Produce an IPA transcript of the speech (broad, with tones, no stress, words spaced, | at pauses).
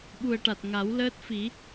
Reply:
ɓu˨˩ə̯ʈa˨˩t̚ ŋa˨˩˦wləː˦˥t̚ fi˨˩˦